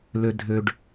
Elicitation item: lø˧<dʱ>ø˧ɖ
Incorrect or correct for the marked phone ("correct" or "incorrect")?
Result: correct